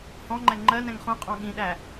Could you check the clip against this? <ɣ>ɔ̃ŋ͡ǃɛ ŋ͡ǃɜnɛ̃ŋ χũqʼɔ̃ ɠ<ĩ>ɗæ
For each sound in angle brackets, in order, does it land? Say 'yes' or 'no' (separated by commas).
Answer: no, yes